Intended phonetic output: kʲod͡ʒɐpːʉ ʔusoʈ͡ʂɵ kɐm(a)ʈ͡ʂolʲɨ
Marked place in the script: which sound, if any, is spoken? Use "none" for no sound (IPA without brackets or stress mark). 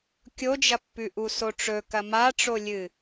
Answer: a